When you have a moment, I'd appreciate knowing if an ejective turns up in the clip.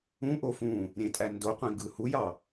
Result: yes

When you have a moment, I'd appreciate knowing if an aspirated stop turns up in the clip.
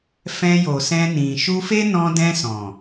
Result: no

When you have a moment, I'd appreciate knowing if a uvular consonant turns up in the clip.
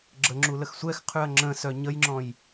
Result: yes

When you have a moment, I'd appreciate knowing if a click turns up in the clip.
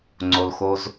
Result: yes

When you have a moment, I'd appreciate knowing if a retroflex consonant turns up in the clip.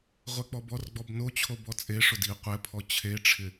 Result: yes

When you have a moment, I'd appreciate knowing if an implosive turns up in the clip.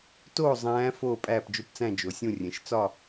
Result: no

